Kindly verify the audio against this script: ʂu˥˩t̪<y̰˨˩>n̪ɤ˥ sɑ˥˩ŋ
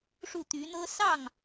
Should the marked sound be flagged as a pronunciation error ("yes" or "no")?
yes